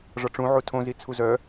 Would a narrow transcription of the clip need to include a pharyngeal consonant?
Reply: yes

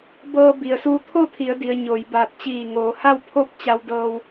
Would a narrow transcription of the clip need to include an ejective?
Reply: no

